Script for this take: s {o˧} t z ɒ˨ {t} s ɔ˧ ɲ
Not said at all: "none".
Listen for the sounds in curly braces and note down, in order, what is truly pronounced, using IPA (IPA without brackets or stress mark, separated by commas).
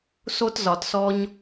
o˧, t